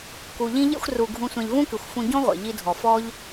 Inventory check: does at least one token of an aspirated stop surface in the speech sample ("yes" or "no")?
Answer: no